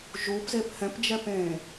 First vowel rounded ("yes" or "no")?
yes